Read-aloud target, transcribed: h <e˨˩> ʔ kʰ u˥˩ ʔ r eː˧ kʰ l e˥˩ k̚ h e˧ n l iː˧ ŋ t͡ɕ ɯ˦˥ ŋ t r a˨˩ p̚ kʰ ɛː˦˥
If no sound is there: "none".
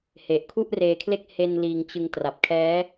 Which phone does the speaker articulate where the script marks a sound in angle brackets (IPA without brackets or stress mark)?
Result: e˨˩